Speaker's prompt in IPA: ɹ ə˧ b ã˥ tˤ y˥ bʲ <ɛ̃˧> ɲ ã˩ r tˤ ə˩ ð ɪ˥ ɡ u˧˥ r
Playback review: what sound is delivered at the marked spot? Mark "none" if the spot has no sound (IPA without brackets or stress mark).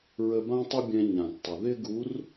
ɛ̃˧